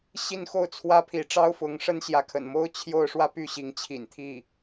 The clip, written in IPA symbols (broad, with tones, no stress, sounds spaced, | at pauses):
ɕ i˥˧ n x o˥˩ ʊ̯ t͡sʰ w ä˥ pʰ i˧˥ ʈ͡ʂ ɑ˥ ʊ̯ f ʊ˧˥ ŋ ʂ ə˥ n ɕ j ä˧˥ kʰ ə̰˨˩ n m o˥ ʊ̯ t͡ɕʰ j o˥˧ ʊ̯ ʂ w ä˥˧ p y˥˩ ɕ i˧˥ ŋ t͡ɕʰ ḭ˨˩ n t̪ʰ i˥˩